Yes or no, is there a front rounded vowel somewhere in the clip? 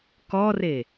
no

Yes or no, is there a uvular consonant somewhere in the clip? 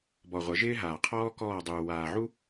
yes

